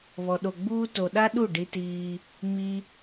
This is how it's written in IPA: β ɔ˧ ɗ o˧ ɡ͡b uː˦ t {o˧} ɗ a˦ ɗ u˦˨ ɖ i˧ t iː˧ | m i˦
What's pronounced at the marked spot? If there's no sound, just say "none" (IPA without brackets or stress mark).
o˧